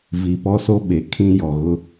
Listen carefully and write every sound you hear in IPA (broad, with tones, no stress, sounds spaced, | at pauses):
v i˨ p ɔ˦ s o˦ ɓ e˨ kʰ ĩ˦ j ɔ˨ ɣ ʊ˦